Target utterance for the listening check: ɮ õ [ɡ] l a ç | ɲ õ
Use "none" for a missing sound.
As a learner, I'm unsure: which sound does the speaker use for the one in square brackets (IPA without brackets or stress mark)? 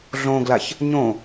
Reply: ɡ